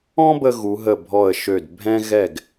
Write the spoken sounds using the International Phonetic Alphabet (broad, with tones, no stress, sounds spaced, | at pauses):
ɔ̃˥ b ə˧ ɣ u˩˧ ɦ ə˧˩ bʱ ɔ˧˩ ə̯ ʃ ø˧˩ d bʱ ɛ̃˧ ɣ ɛ˧˩ ɡ